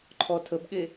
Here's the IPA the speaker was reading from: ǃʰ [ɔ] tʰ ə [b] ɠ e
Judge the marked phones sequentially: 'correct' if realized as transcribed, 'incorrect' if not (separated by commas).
correct, correct